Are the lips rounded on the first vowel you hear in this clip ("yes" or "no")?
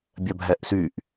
yes